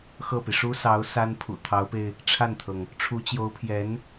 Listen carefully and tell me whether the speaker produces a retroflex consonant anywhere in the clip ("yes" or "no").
yes